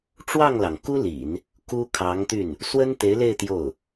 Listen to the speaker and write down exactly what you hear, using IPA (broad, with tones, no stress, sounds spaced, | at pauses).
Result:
ʈ͡ʂ w ɑ˥˩ ŋ l ɑ˩ ŋ k u˥ l ḭ˨˩˦ n | k u˥ kʰ ɑ˧˥ ŋ t̪ y˥˩ n | s w ə˥ n t̪ e˧˥ ɪ̯ l e˥˧ ɪ̯ t̪ j o˥˩ ʊ̯